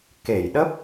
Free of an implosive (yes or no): no